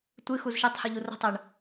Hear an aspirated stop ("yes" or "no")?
no